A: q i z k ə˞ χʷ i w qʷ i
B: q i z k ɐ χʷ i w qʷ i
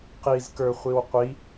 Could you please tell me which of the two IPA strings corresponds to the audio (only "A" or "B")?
A